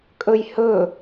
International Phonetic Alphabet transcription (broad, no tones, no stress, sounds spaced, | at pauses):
kʼ ɵ j h ɵ